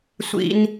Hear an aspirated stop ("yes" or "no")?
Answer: no